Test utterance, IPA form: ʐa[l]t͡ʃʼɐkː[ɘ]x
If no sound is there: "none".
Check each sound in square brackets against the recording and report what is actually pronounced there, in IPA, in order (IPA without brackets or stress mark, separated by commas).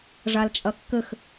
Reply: l, ɘ